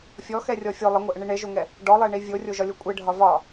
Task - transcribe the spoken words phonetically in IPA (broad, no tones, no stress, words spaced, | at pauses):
fʲɔxɛrʲɔ fʲo lˠəŋʷɛʔəɳi ɳeʒoŋɛ | ɖɔlˠeɳi vʲorʲoʒɒlʲo kʷʼeɖʱɒ vɒ